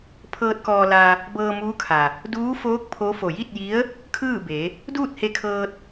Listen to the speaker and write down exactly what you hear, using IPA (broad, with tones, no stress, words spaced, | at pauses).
pʰɤː˧t̚kɔː˧la˧ | bɤː˧muː˧˥kʰa˩ | duː˧˥foː˧˥k̚ pʰo˧˥ fo˩ji˥˨t̚ji˧˥ə̯ | kʰɯː˥˨be˩˧ | duː˥˨t̚he˧kʰɤː˧t̚